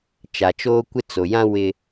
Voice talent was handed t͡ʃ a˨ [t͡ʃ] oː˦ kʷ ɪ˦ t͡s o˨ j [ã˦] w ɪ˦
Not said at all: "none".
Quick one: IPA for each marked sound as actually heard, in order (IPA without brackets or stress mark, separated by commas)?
t͡ʃ, ã˦